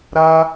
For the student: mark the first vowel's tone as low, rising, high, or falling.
high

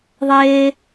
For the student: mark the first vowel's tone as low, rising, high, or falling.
high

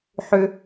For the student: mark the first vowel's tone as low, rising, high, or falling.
high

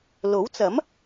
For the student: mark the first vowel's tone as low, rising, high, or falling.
rising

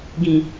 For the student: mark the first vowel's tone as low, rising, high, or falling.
low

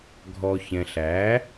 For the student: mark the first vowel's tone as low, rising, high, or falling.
low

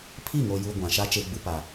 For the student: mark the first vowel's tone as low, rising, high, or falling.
falling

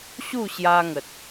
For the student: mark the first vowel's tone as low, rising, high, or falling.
falling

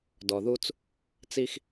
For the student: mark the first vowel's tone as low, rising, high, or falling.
low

